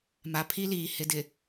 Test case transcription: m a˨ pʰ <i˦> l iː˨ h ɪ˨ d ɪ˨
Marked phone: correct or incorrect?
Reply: correct